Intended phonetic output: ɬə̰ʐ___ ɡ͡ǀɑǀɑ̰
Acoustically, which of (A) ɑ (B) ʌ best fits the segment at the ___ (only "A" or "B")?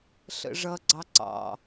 B